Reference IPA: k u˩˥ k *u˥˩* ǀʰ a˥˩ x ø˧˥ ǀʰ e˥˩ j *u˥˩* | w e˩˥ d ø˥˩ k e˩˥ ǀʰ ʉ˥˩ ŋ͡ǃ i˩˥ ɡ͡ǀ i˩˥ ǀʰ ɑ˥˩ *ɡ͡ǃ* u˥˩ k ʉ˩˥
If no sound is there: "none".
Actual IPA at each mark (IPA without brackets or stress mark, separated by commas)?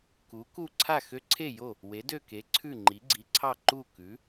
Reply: u˥˩, o˥˩, ǃ